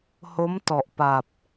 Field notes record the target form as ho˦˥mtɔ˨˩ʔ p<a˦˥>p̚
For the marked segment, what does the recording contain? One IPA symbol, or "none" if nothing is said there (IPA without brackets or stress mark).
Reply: a˨˩